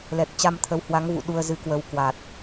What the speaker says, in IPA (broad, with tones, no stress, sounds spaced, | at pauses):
l ɛ˨˩ k̚ t͡ɕ a˧ m t̪ʰ ə˨˦ w h w a˨˦ ŋ v ṵ˧˨ ɗ u˧ ə̯ z ɨ˧ k w ə˧ w k w a˨˩ t̚